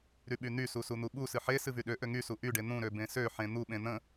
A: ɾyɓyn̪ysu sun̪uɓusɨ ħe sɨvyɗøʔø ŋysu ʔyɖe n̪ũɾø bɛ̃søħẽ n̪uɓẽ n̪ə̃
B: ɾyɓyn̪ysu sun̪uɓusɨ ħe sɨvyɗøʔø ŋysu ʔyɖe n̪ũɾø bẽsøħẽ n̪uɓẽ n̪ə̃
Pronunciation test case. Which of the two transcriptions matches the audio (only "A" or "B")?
B